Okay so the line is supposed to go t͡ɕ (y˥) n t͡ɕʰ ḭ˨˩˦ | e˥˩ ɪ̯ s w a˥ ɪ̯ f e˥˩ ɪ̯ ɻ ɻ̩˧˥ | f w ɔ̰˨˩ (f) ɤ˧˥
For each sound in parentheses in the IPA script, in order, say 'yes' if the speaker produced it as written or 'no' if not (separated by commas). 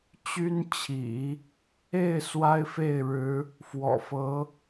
yes, yes